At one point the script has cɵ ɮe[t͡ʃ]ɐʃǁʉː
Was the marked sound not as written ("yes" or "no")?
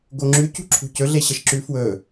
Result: yes